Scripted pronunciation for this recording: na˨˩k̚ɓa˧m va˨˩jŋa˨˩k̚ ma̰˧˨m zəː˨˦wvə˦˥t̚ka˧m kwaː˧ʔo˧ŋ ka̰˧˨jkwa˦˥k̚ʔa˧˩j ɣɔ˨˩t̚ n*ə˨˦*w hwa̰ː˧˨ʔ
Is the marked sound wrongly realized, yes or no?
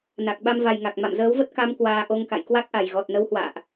no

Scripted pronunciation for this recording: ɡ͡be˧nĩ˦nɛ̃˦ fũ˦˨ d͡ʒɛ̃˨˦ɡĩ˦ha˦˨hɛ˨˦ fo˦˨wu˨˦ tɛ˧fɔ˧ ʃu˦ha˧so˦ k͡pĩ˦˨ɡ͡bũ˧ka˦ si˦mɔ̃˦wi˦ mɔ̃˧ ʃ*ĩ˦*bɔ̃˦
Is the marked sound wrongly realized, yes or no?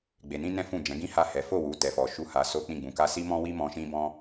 no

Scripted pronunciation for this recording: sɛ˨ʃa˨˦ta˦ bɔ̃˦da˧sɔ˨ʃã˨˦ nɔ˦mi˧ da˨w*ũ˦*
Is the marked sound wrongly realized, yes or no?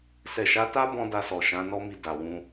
yes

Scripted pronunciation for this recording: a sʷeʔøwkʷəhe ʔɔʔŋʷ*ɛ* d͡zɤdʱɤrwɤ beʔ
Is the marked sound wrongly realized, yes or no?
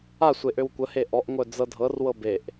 yes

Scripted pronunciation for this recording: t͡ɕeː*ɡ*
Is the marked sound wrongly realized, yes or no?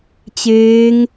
yes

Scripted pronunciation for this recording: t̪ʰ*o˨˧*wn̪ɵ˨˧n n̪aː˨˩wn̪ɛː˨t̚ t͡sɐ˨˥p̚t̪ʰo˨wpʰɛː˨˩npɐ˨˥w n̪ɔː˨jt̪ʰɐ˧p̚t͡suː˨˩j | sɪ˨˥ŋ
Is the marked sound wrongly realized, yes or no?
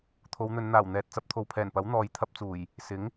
no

